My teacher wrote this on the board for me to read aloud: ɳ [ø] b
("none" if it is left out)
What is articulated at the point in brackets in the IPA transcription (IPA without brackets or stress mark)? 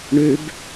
ø